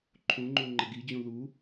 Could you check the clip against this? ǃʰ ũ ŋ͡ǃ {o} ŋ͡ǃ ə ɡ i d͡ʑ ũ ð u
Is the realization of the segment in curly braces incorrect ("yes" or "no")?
yes